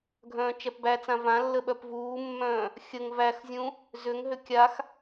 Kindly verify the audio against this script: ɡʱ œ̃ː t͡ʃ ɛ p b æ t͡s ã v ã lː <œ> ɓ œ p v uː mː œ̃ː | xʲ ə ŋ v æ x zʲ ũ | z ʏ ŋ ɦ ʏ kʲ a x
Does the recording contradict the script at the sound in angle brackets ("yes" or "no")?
yes